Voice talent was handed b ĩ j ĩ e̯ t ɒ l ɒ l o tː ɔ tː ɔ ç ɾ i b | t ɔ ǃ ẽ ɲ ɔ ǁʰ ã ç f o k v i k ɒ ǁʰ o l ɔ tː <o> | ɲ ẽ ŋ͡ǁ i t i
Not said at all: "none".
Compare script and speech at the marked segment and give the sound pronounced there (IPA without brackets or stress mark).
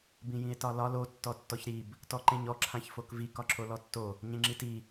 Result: o